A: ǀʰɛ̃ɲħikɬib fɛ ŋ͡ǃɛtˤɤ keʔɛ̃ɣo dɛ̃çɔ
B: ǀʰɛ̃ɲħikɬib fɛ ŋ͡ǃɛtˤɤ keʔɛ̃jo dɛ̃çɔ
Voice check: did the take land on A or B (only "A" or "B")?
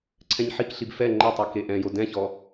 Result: B